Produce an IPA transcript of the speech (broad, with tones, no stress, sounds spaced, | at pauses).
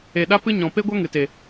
e˨ ɗ a˦ p ɨ˦ ɲ ɔ̃˨ p e˦ ɡʷ a˦ ŋ ɨ˨ t e˨